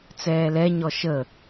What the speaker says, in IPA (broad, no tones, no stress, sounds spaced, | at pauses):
t͡s ɛː l ɛ ɲ ɔ ʃ ə